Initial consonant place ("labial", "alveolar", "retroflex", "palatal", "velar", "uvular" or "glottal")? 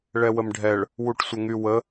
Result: retroflex